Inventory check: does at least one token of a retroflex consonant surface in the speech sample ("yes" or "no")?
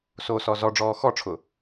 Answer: yes